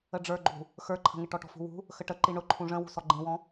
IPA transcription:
ə ɖ͡ʐ ə˞ ɡ͡ǃ ṳ | x ə˞ ǃʰ ə̤ ŋ ɪ ʈ ɔ ʈ ɔ̤ f ṳ w ṳ | x ə ʈ ə ǃ i ɳ ʊ ǃʰ ũ ʐ ə̃ w ṳ s ɔ ɡ͡ǃ ĩ w ɔ̃

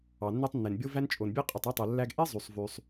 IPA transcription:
ɑ˩ nː e˥ tˤ nː e˩ n bʲ o˥ v æ˥ n t͡ʃʼ o˩ n bʲ e˥ qʼ y˩ tˤ i˥ tˤ o˩ lː æ˥ ɡ ʔ e˥ zˤ y˩ sˤ v y˩ sˤ

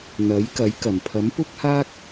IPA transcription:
n̪ ɐ˨˥ j k ɐ˨˥ j k ɐ˨˩ m pʰ ɐ˨˥ m p ʊ˥ k̚ h aː˥ k̚

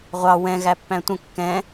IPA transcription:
ʁʷ ɑ w ɛ̃ ɣ æ pː æ̃ tʷ ə̃ kː ɛ̃

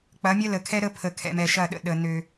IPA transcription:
k͡p ɐ˨˦ mʲ ɐ˦ l ə˨ kʰ ɛ˦ ɾ ə˦ pʰ ə˨ kʰ ɛ̰˨ m ɛ˨ ʃ ɐ˦˨ ɗ ə̰˨ ɗ ə˨ n ø˦

